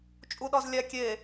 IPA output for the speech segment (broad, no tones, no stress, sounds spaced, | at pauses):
t͡ʃʼ u ɗ ɒ z lʲ æ kʲ e